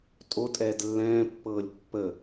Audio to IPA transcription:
tʼ o tʼ ɛː d lː ɛ̃ː pː ɤː lʲ pː ə

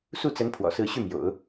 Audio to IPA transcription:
s u˥˩ t͡s ə˧˥ n pʰ w ɔ̰˨˩ s ɹ̩˥˧ ɕ y˥˩ m j o̰˨˩˦ ʊ̯

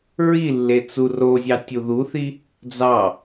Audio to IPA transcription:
ɹ i lː e t͡s u r o zʲ ɑ tʲ u ð u θ i | d͡z ɑ

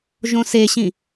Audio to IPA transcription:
ʒ õ s e ɕ ĩ

